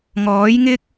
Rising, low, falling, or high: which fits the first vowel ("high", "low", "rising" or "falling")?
rising